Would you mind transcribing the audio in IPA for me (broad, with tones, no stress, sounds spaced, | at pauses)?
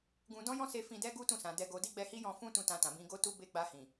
ɡ ũ˧ d ɔ̃˦ j ɔ̃˦ s e˧ f ĩ˧ d ɛ˦ ɡ u˦ t ũ˦˨ s ã˨ d ɛ˧ ɡ o˧ d i˦ ɡ͡b ɛ˧ h i˦ j ɔ̃˧ f ũ˦ t ũ˧ t ã˧ t ã˨ b ĩ˧ ɡ o˧ t u˦ b e˦˨ ɡ͡b a˧ h ĩ˨